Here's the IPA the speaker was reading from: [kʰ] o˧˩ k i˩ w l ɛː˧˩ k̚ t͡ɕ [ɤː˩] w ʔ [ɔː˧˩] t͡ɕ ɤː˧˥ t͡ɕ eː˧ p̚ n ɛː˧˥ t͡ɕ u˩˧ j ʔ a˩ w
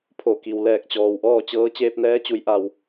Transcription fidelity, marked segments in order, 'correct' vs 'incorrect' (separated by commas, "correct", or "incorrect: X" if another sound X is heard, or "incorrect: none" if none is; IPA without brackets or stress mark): incorrect: pʰ, incorrect: ɔː˩, incorrect: ɔː˥˨